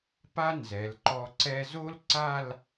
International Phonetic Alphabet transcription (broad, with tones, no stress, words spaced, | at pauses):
pa˥nzɛ˩˧lǃɔ˧ ǀɛ˧ zo˥lǀa˥˧l